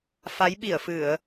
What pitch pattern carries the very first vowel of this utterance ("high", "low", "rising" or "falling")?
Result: rising